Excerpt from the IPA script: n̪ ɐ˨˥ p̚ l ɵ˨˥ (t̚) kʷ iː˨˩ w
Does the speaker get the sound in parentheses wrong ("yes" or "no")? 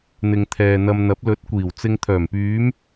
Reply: no